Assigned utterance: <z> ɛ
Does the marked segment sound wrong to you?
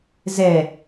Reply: no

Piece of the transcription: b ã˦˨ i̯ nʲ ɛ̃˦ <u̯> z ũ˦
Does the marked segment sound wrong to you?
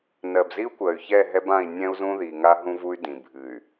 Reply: no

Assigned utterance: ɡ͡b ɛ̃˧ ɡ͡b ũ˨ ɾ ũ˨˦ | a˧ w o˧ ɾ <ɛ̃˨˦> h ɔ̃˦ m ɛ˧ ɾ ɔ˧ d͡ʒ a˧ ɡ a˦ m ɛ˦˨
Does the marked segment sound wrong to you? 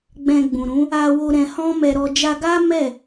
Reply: yes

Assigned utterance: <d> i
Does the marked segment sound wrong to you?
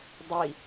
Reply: yes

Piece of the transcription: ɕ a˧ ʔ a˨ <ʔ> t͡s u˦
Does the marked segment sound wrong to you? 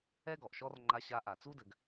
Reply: yes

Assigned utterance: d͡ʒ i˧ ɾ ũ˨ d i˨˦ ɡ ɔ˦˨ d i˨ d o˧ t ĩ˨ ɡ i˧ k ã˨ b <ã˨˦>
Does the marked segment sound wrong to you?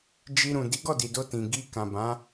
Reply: no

